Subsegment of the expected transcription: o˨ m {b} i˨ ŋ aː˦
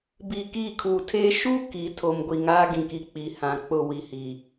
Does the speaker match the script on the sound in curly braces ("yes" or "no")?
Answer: no